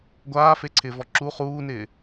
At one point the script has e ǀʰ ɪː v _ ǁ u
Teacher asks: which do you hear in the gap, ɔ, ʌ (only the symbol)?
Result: ɔ